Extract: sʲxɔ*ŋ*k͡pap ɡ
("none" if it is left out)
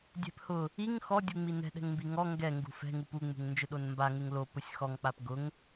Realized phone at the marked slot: ŋ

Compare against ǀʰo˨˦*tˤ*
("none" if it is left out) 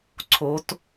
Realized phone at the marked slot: t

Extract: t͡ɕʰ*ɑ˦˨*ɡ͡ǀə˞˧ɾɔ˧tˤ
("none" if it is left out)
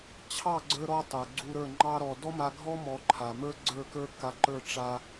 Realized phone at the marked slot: ɑ˦˨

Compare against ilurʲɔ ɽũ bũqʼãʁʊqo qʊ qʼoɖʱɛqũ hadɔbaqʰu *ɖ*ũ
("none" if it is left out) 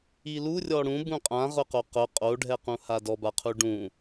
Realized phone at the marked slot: ɖ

